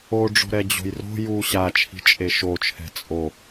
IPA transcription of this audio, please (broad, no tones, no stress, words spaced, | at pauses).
oɖ͡ʐo̤ɾɛ d͡ʑo̤jro̤ ju ɕat͡ʃʰi̤ t͡ʃʼeʃot͡ʃʰɛ̤ t͡sʼo